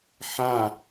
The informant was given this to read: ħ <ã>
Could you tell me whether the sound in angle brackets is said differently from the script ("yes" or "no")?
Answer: no